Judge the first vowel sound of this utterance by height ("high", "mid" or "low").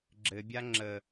mid